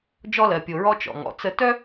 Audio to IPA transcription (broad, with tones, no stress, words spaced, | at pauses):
d͡ʒɔ˧lɜ˨pʲo˨ ɹɔ˧ t͡ʃɔ̰˨ŋɔ̰˨t͡sə˦ tœ˦